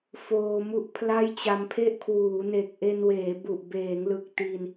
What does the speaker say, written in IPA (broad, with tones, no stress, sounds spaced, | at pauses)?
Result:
f oː˧ m u˥˩ ʔ pʰ l a˥˩ j t͡ɕ a˧ m pʰ e˥˩ ʔ kʰ w uː˩˦ n e˨˩ k̚ ʔ e˧ n w eː˩˦ b u˨˩ ʔ b eː˩˦ ŋ l ɯ˨˩ k̚ t i˧ n